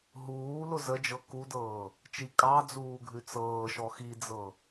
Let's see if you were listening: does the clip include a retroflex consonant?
no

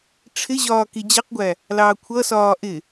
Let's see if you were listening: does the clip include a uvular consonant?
yes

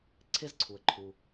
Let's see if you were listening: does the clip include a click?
yes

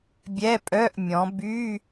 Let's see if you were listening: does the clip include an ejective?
yes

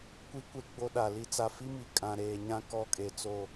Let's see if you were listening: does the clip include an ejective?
yes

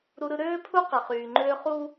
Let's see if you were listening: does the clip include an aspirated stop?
yes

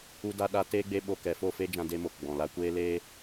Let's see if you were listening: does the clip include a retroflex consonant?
no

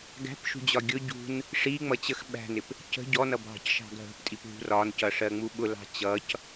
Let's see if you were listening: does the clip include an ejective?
yes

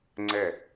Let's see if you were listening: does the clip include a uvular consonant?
no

